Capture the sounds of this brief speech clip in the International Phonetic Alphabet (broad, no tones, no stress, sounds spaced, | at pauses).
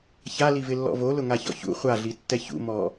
ç a l i v ɪ lː ɔ̰ v o l ʊ ŋ a ç ɔ̰ ç ṵ χʷ a ɮ i tː ɛ ç ṵ m ɔ